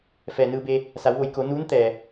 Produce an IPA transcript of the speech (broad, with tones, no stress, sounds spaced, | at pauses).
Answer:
f ɛː˩ n ɯː˧ b eː˧ | s a˩˧ w ʋ o˩˧ j k o˩˧ n uː˧˥ n t̪ ɛː˩